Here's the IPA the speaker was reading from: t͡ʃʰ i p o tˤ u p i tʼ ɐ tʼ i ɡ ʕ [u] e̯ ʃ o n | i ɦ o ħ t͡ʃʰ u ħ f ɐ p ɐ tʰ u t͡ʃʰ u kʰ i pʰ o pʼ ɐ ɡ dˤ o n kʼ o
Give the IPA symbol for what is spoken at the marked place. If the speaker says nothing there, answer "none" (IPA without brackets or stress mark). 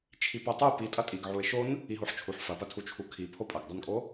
u